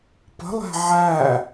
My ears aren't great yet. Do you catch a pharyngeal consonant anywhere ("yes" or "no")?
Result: yes